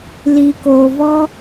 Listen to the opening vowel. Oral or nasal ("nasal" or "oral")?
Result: oral